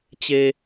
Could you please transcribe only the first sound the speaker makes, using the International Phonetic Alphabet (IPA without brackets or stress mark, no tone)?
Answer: t͡ɕ